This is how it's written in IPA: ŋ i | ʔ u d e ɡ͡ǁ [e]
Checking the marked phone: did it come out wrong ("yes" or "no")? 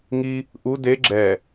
yes